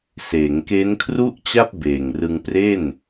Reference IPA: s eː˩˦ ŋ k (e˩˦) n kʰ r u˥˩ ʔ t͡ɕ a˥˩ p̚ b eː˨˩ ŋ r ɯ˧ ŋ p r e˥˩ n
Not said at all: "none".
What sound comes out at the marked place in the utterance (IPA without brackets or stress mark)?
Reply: e˦˥